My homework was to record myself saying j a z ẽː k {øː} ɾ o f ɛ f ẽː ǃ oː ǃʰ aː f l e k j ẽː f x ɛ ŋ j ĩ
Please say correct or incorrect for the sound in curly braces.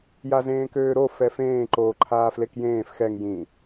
correct